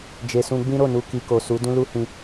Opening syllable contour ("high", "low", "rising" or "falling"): low